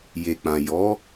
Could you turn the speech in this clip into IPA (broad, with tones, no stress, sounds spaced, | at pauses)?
j e˨ k͡p ã˨ j ɔ˨˦